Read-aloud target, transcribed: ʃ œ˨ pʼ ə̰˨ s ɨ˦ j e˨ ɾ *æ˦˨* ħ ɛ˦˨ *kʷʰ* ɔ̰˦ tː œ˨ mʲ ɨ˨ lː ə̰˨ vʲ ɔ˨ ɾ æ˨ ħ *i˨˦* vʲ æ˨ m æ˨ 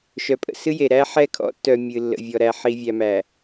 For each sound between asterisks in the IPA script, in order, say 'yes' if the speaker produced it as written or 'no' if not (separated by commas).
no, no, no